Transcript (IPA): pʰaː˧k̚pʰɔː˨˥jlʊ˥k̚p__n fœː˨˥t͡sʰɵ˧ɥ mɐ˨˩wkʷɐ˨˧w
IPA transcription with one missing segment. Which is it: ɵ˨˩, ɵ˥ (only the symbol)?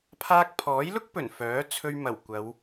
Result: ɵ˨˩